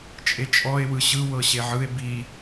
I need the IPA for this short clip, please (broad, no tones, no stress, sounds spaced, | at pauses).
t͡ʃʼ e t͡ʃʼ ɔ e̯ w ɯ ɕ ɯ w ɤ ɕ e ʕ ɯ e̯ b i